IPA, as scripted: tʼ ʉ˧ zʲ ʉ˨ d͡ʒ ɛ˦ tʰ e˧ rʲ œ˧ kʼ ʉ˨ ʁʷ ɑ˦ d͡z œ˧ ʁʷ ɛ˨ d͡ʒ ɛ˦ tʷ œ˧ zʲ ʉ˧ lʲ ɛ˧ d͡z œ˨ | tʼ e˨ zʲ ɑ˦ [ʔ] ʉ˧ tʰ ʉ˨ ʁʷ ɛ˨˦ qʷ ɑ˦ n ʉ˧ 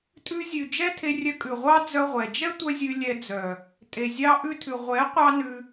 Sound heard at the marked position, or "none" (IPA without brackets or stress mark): ʔ